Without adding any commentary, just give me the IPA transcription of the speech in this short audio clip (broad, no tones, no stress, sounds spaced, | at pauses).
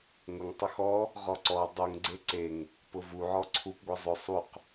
ŋ ʊ ŋ tˤ ʊ x ɔ | ʁ ɔ ǀ ɔ dˤ u ŋ ɡ͡ǀ e ǀ e ŋ | p ʊ v u ʕ ɔ ǀʰ u p ɡʷ i zˤ ʊ sˤ u q